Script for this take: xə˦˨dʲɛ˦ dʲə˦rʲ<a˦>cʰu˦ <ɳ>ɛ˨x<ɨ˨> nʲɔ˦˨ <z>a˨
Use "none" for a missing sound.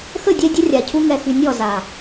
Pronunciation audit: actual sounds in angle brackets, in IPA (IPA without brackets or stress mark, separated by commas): a˨, ŋ, y˨, z